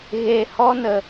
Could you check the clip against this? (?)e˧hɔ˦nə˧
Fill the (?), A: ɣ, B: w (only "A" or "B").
A